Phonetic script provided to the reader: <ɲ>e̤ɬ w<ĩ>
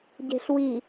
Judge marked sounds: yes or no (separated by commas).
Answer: no, no